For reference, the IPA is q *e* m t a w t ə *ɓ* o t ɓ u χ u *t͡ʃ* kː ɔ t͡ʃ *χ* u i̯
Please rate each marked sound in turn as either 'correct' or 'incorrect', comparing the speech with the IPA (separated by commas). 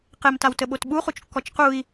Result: correct, correct, correct, incorrect